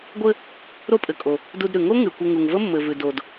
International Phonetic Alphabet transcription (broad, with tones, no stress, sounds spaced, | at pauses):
ɡʷ ɘ˧ | ɾ o˥ pʼ ɘ˩ kʼ o˩ | d u˧ d ɾ ʉ˩ ŋ o˥ ŋ ʉ˩ kʷ ɘ˧ ŋ u˩ ŋ v ə˥ mː ɘ˩ v ʉ˩ d o˩ d